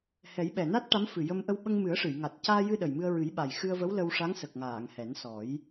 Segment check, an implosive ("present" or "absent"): present